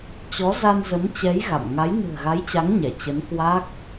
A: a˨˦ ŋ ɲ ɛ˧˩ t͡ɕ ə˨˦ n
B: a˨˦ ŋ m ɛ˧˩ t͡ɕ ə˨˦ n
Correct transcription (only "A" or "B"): A